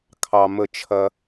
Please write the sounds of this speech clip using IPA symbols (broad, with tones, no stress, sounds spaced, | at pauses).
kʰ ɑ˨ m ə˧ t͡ʃʰ ɐ˦